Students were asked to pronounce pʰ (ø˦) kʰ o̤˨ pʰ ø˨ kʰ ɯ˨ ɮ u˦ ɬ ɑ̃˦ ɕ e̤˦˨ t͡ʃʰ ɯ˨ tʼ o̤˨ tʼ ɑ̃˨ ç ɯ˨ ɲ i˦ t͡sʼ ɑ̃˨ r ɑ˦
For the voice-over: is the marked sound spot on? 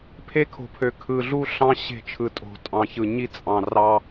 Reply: no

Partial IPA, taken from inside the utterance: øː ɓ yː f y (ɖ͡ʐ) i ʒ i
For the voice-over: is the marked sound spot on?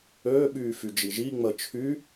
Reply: no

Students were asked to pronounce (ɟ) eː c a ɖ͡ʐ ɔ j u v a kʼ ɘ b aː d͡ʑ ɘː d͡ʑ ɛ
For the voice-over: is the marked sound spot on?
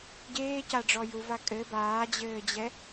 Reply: yes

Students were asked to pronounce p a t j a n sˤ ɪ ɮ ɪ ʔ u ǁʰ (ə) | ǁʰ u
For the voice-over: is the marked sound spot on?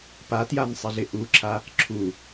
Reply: no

